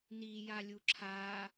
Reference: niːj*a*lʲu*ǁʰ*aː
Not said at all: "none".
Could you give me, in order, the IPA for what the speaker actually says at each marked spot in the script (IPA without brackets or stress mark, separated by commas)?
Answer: a, ǁʰ